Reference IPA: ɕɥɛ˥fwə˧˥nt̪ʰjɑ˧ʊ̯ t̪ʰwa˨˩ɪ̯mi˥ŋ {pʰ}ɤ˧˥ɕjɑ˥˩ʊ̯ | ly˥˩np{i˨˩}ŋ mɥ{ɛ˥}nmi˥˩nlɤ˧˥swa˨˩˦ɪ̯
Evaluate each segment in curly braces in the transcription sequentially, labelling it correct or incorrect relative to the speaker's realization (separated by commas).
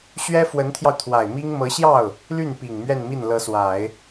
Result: incorrect, correct, incorrect